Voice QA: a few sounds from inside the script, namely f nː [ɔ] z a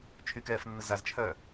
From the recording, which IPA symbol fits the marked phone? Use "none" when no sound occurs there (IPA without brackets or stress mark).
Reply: ə